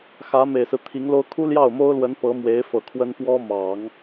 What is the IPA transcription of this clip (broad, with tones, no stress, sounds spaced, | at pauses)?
x ä˧˥ m e˨˩ ɪ̯ s ɹ̩˦ t̪ʰ i˧˥ ŋ l o˥ ʊ̯ kʰ u˥ l j ɑ˥˩ ʊ̯ m o˥ ʊ̯ l w ə˧˥ n p ɤ˧˥ m w e˧˥ ɪ̯ f ɤ˨˩ kʰ w ə˥ n p w ɔ˥ m ɑ˨˩˦ ŋ